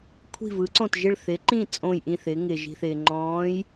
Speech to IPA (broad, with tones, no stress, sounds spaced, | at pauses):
kʷʰ i̤˧˩ v ɯ˩˧ ǀ õ˧˩ t ʒ ɪ˧˩ ɭ θ ɪ˩˧ ǃ ĩ˧˩ t͡sʼ õ˧˩ j ʔ ĩ˧˩ θ ɪː˩˧ ŋ ɪː˩ ʒ i̤˩ θ ɪː˩ ŋ͡ǃ ɔ̃ː˩˧ j